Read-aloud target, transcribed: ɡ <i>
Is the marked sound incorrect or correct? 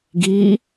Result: correct